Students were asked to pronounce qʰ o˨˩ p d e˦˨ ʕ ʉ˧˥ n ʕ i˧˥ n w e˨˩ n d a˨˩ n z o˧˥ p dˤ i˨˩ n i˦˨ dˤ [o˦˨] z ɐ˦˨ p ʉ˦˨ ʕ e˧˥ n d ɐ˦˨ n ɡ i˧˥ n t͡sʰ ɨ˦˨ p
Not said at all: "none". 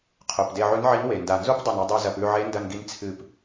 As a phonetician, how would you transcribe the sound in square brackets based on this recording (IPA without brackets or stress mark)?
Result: o˦˨